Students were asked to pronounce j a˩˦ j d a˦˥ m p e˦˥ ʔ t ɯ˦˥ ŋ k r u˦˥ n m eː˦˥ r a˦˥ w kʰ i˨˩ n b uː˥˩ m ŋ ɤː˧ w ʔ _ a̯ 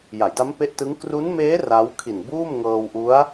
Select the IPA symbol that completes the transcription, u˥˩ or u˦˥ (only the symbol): u˦˥